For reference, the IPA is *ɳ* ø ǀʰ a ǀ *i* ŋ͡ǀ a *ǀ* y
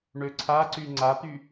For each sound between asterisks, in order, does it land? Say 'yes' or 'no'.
yes, no, no

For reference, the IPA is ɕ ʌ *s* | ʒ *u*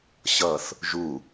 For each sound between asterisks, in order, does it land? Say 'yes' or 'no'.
no, yes

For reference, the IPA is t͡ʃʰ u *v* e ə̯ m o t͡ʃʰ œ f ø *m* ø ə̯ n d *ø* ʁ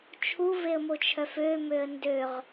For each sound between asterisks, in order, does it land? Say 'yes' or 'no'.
yes, yes, yes

